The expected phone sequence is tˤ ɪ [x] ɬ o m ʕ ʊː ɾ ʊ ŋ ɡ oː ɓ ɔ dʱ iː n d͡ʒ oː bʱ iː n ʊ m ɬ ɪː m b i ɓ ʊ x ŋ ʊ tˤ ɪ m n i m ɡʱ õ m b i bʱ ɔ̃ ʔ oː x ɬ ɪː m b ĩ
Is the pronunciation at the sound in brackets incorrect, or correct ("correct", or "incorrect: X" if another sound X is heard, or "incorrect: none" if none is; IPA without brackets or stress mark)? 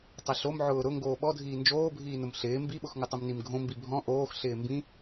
incorrect: none